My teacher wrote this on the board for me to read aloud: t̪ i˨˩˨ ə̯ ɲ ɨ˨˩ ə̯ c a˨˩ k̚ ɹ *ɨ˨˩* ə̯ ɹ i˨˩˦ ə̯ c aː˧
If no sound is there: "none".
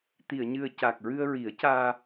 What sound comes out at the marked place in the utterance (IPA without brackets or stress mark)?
ɨ˧